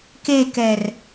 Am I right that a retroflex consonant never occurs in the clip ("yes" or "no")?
yes